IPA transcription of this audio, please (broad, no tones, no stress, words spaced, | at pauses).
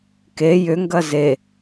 ke jʏŋɡɐ ze